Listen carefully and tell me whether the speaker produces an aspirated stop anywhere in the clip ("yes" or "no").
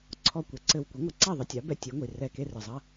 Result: yes